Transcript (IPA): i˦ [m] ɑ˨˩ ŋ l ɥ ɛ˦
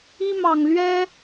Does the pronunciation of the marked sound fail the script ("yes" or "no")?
no